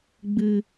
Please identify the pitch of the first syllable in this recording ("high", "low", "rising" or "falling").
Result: low